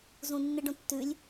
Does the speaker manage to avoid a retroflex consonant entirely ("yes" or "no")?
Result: no